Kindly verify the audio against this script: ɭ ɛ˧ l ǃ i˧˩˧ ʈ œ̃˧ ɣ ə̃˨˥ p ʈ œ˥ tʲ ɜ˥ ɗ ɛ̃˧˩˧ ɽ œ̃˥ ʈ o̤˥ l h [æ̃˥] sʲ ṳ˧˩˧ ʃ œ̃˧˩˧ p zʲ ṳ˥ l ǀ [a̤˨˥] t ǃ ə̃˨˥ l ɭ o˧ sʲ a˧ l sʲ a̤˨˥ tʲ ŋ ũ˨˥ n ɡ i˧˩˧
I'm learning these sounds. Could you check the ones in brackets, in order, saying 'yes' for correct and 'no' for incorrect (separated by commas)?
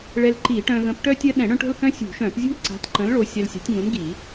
no, yes